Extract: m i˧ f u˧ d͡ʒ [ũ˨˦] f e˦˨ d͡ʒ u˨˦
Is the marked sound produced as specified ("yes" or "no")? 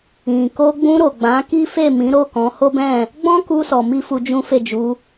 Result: no